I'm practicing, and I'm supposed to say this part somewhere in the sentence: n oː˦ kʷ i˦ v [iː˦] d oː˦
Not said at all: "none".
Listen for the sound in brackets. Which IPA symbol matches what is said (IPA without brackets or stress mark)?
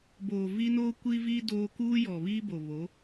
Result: iː˦